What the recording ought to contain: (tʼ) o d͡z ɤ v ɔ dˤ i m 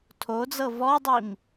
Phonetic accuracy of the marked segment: incorrect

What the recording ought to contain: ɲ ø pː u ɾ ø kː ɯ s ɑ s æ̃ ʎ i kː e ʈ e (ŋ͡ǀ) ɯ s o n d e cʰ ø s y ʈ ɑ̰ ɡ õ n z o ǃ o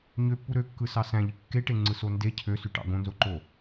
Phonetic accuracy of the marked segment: correct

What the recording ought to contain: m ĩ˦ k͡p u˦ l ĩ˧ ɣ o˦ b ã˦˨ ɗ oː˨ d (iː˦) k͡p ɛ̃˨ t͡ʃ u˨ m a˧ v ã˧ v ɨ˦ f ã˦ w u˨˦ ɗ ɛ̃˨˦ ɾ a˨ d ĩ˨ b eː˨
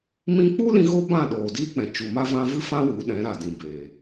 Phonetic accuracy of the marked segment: correct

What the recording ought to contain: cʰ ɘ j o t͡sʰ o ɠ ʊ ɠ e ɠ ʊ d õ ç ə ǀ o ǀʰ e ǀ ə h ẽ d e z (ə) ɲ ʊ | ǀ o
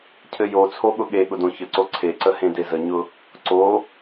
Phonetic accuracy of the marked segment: correct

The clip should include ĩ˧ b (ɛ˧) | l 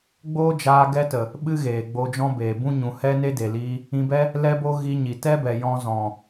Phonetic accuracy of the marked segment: incorrect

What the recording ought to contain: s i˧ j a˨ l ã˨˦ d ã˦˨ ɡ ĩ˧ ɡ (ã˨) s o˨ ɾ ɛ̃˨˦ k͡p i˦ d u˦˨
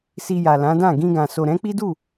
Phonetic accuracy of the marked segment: correct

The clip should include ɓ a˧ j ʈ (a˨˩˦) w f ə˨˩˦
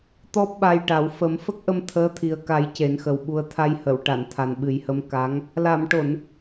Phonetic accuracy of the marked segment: correct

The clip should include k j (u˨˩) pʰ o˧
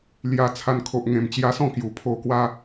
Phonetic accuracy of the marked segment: correct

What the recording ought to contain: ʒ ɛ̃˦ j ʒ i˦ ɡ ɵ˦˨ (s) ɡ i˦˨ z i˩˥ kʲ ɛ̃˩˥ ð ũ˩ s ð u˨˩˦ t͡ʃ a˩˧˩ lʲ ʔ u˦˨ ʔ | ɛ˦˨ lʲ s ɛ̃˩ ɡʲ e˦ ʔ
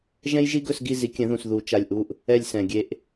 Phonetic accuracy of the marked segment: correct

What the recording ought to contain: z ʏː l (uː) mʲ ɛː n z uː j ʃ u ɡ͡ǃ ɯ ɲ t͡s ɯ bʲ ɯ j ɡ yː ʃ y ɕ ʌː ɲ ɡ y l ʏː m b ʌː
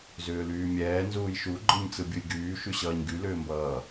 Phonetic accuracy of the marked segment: incorrect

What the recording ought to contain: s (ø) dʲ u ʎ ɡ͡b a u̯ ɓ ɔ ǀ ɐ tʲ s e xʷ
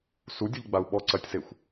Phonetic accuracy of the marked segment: incorrect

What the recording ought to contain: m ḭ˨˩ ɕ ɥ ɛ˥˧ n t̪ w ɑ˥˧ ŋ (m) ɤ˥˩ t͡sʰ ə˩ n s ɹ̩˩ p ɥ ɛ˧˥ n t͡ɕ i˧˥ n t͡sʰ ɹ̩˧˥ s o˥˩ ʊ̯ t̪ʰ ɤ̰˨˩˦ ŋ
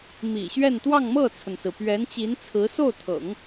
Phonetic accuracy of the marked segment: correct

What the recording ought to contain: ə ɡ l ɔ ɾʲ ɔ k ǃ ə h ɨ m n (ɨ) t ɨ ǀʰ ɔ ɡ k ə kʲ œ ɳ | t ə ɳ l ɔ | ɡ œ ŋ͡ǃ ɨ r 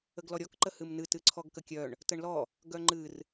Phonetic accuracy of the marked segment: correct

